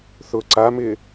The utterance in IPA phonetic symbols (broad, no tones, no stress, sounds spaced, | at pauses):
θ ʊ ǀ a m ɪː